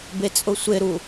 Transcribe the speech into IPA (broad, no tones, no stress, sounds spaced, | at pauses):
b e t͡sʼ ʊ sʷ e ɾ u